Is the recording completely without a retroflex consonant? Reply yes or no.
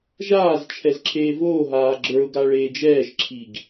no